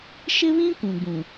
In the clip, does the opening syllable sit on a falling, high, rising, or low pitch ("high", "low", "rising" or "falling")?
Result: high